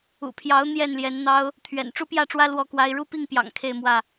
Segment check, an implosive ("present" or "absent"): absent